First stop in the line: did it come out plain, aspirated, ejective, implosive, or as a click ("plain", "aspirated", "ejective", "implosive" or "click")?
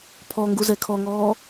aspirated